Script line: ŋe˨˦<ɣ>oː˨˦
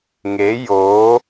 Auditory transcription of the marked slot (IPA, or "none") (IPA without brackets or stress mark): j